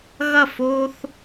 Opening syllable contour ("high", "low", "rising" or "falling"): falling